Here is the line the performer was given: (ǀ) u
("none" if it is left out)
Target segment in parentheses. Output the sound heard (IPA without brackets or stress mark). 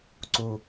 ǀ